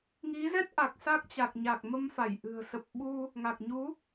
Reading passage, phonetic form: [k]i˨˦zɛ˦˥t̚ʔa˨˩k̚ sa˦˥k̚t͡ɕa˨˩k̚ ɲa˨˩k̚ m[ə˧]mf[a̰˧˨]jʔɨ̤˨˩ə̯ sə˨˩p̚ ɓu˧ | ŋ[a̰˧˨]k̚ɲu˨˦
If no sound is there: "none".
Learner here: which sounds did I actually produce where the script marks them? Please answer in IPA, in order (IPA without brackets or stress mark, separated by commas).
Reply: ŋ, ə˧, a˧˩, a˨˩